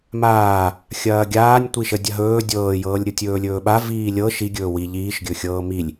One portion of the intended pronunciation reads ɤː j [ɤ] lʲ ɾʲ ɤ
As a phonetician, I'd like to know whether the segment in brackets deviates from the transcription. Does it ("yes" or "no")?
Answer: yes